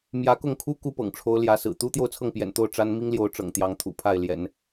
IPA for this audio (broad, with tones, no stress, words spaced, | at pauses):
mjä˧˥kʊ˥˩ŋkʰu˥ ku˥pɤ̰˨˩ŋʈ͡ʂʰo˧˥ʊ̯ ljä˧˥sɹ̩˨˩ t̪u˥ t̪jo˥˧ʊ̯t͡sʰɤ˥˩ŋpjɛ̰˨˩nt̪o˥˩ʊ̯ ʈ͡ʂa˥n mi˥ŋljo˧˥ʊ̯ ʈ͡ʂɤ̰˨˩ŋ t̪jɑ˧˥ŋt̪ʰṵ˨˩ pʰa˥˩ɪ̯ljɛ̰˨˩˦n